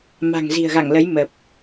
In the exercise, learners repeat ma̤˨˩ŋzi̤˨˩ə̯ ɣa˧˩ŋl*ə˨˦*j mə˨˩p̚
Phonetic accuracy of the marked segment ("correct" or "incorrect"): correct